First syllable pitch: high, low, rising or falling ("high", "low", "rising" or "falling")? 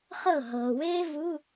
falling